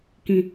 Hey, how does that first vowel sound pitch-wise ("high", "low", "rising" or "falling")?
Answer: low